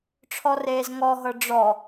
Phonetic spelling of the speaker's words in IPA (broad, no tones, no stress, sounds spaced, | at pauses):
ʈ͡ʂʰ ɔ r eː z ŋ ɔ ɦ ɤ ɖ͡ʐ ɔ